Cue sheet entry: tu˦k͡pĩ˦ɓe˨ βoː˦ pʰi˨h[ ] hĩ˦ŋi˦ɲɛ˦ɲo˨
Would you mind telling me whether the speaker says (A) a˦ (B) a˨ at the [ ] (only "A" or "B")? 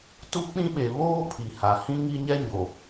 B